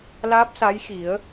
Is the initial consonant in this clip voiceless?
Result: no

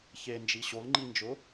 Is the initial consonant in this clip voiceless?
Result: yes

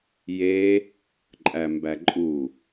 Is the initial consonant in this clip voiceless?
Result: no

